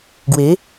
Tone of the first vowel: rising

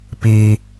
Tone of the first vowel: high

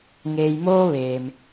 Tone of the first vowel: low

